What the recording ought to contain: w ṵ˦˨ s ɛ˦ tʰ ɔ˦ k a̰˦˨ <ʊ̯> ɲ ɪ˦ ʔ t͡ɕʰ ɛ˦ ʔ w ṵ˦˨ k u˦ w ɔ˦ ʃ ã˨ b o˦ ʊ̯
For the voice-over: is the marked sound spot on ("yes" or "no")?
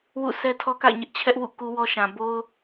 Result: no